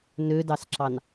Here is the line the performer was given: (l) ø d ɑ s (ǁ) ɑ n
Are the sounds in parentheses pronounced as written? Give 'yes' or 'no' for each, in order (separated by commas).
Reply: no, yes